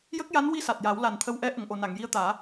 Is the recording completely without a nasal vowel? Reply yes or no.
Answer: yes